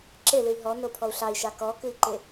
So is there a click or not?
yes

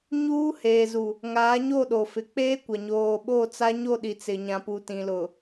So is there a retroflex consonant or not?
no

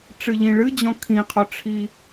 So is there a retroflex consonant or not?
yes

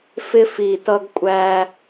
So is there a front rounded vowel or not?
no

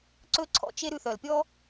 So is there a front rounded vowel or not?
yes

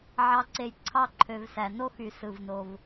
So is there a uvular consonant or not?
no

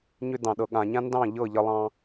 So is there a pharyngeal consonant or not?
no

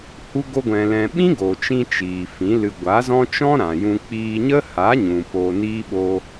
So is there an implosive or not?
yes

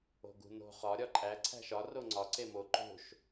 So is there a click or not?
yes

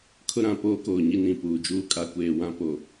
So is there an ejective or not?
yes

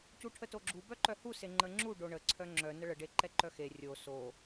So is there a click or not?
yes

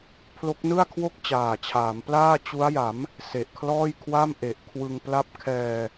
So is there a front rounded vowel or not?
no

